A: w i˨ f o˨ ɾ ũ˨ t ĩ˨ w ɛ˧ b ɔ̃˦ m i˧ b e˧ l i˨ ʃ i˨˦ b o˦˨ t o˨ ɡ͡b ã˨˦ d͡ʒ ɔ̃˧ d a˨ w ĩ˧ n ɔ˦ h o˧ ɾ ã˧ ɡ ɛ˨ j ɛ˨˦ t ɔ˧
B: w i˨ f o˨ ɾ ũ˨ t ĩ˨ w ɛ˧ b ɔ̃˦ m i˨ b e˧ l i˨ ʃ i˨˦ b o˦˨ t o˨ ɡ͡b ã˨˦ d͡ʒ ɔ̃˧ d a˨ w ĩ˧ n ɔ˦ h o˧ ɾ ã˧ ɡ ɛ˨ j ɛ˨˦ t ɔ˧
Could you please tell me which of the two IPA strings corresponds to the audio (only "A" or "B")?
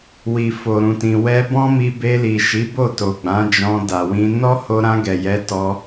A